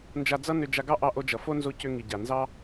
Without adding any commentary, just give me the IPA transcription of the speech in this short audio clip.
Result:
n d͡ʒ a˧ d͡z ʌ˦ n ʏ˧ d͡ʒ a˧ ɡ ɑ˦ ʔ ɑ˧ ʔ o˧ d͡ʒ ʌ˨ f o˦ n z o˧ c ʏ˧ ŋ i˨ ɟ a˨ n z ɑ˦

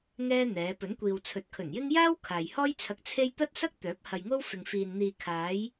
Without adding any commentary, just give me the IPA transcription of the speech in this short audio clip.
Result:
ŋ ɛː˥ n̪ ɛː˨˧ p ɵ˨˥ n kʷ iː˨ w t͡sʰ ɵ˨˥ t̚ kʰ ɵ˨˩ n j ɪ˥ ŋ j aː˥ w kʰ aː˨ j h ɔː˥ j t͡sʰ ɐ˧ k̚ t͡sʰ e˥ j t̪ ɐ˥ t̚ s ɐ˥ k̚ t̪ œː˨˥ p̚ h ɐ˧ j ŋ o˥ w f ɪ˨ ŋ f iː˨ n n̪ iː˨ kʰ aː˨˧ j

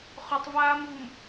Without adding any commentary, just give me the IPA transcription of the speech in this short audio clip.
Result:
χ ɵ tˤ v aː m v u m

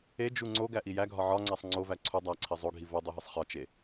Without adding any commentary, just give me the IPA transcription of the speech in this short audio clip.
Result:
e d͡ʒ u ŋ͡ǀ o ɡ æ ʔ i j æ ɡʱ ɒ ʕ ɒ ŋ͡ǀ æ sˤ ŋ͡ǀ o v æ ǀʰ u dˤ æ ǀʰ i zˤ o ɡʱ i v o dˤ i ɦ e sˤ χ ɒ t͡ʃ e

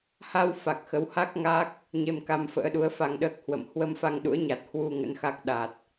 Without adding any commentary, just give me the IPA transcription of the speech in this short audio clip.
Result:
h a˧ w f a˨˩ k̚ x ə˨˦ w h a˦˥ k̚ ŋ a˦˥ k̚ | ɲ e˧ m k a˧ m f ə̰ː˧˥ ɗ u˨˦ ə̯ f a˧ ŋ ɗ əː˦˥ k̚ h w ə̰˧˨ m h w ə˧ m f a˧ ŋ ɗ ṵ˧˥ ə̯ ɲ a˨˩ t̚ h w u˧ ŋ ə̰˧˥ n x a˦˥ k̚ ɗ a˨˩ t̚

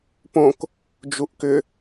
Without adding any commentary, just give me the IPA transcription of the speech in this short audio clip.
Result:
p õ k | d͡ʒ u ʔ k ʏ

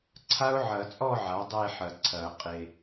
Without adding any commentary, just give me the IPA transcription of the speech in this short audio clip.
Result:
ǀʰ a˦˥ ʊ̯ ʕ ɐ˨˩˦ t͡sʼ ɔ˥˧ ʕ a˩˥ dˤ e˥˧ ħ ɐ˨ ǀʰ ɐ˨˩˦ qʼ e˨

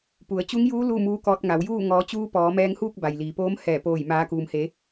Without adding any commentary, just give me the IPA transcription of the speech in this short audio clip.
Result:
p u˩˧ ə̯ t͡ɕ u˧˥ ŋ j uː˧˥ l u˥˨ m uː˧˥ k ɔː˧ t̚ ŋ a˩˧ w j uː˥˨ ŋ ɔː˩˧ t͡ɕ uː˧ p ɔː˩˧ m ɛː˧ ŋ h uː˥˨ k̚ b a˩ j l iː˩ p oː˧˥ m h ɛː˧˩ p oː˧˩ j m aː˩˧ k uː˩ m h e˩˧

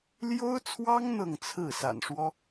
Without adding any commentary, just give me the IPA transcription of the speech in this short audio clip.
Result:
l j o˥ ʊ̯ t͡sʰ w ɑ˥ ŋ n̪ ɤ˥˧ ŋ t͡sʰ ɹ̩˥˩ s a̰˨˩ n ʂ w ɔ˥

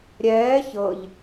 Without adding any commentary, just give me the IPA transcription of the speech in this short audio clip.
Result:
ɾʲ ɛː ç ɤ ʎ

